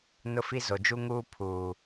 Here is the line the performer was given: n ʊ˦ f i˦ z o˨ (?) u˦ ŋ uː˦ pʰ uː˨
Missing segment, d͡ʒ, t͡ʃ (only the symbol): d͡ʒ